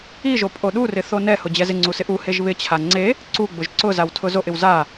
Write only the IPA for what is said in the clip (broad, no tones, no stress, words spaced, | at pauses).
iʒo pʼoɗurɪ θonɛhʊ d͡ʑɛzɪŋ͡ǀu sɪʔuheʒ βɪt͡ɕʰa ŋ͡ǀe | ǀuɡ͡bʊʒ ǀʊzaw tʰʊzoʔɪw za